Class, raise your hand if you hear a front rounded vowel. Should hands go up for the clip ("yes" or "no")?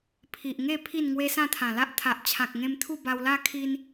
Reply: no